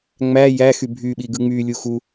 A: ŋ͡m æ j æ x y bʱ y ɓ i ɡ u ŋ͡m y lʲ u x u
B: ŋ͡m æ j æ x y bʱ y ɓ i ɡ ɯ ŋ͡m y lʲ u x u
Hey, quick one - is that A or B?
B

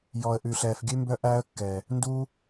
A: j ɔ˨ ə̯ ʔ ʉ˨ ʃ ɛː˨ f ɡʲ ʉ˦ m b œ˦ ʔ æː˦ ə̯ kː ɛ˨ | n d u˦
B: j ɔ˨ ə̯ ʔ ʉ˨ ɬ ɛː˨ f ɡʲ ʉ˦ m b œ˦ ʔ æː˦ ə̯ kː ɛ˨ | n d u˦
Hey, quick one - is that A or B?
B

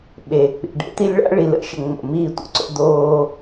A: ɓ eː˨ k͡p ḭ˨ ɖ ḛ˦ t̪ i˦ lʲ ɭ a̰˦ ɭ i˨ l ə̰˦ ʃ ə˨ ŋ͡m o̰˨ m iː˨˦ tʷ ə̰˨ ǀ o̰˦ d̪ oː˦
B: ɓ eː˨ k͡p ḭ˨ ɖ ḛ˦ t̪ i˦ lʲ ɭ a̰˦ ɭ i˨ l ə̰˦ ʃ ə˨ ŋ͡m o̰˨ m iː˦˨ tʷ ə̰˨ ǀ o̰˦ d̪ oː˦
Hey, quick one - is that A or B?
B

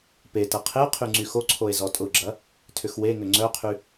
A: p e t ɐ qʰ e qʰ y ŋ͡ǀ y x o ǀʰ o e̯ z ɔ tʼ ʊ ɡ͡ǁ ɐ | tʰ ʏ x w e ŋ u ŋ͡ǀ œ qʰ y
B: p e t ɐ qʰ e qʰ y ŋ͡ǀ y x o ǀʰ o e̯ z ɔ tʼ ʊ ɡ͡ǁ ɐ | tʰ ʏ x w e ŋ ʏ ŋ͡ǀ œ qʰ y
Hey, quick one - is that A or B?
B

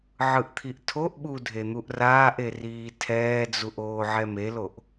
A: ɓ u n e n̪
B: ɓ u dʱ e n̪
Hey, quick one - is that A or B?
B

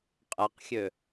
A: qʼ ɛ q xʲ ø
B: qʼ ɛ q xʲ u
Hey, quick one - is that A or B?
A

